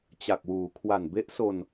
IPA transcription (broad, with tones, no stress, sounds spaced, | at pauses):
t͡ɕ a˨˩ k̚ w uː˩˦ kʰ w a˨˩ n b e˦˥ ʔ s o˧ n